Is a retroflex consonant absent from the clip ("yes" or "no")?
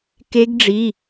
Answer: no